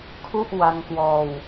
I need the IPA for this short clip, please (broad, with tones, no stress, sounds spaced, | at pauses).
kʰ u˥˩ ʔ w a˧ ŋ k w ɔː˧ w